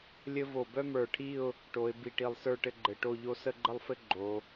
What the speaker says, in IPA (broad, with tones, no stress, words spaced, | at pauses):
lʲɘ˥ vo˧˩bœ˥mə˞˧˩ʈʰi˥˧ʊ̯ | ʈo˩˧ɪ̯ bi˧˩ʈi˧˩lˠsə˞˥˧ʈɘ˥˧ ɡ͡ǃɘ˧˩ʈo˥˧ʎo˥ sə˥˧ɡ͡ǃə˥˧lˠfɘ˥ ɡ͡ǃo˩˧